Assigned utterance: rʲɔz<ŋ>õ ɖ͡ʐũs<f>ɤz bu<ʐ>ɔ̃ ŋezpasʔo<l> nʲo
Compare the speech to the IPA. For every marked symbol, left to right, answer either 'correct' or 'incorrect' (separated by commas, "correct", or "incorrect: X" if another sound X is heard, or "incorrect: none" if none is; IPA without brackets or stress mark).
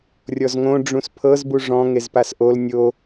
correct, incorrect: pʰ, correct, correct